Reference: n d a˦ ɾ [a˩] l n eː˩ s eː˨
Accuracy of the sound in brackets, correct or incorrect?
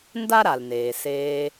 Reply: correct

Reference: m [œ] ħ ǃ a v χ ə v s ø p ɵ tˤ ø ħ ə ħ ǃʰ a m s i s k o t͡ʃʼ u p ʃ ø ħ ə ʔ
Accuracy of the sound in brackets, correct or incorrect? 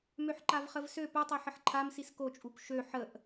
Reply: incorrect: ø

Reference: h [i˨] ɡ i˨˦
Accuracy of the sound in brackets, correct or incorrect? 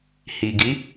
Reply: correct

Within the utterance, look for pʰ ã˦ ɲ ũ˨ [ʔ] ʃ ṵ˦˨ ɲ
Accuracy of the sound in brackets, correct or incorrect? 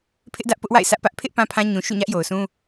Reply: incorrect: none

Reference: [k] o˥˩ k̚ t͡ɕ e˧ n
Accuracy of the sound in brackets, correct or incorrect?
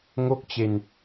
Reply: incorrect: ŋ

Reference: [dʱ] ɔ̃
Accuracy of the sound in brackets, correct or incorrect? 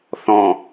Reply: incorrect: θ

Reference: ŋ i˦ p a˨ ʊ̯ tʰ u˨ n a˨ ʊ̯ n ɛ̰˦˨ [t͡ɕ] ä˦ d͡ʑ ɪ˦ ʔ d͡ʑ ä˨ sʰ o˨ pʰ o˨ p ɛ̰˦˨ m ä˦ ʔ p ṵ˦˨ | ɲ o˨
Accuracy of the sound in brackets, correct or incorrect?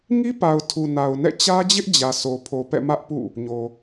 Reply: correct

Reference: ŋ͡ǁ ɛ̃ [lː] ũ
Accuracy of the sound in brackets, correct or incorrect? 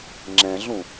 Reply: incorrect: ɮ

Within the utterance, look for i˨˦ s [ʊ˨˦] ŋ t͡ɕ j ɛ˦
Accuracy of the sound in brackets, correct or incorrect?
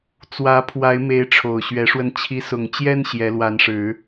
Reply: incorrect: ʊ˨˩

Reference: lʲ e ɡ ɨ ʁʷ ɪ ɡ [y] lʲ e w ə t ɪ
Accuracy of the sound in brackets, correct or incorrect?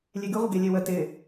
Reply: incorrect: e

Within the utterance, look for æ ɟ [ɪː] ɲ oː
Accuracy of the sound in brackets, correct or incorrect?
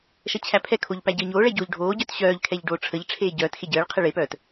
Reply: incorrect: əː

